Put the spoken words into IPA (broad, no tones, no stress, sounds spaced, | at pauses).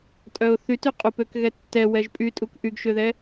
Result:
tʼ œ ʊ̯ θ y t y qʼ u p ø k ɣ ɛ tː ɛ w ɛ ʒ pʼ y tʼ u k ʔ y ɡ ʃ ø ð ɛ